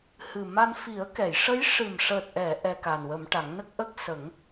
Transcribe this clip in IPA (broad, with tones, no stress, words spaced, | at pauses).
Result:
hɨ˨˩ma˧n fi˨˩˦ə̯kɛ˨˩˨jʂə˧˥j ʂɨ˨˩mʂəː˨˩t̚ʔɛ˨˩˨ ʔɛ˧ka˨˩nwə˨˩˦m ʈa˨˩˦ŋ nə˦˥k̚ʔə˦˥k̚ sə˨˩˦ŋ